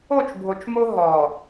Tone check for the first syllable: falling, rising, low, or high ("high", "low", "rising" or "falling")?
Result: falling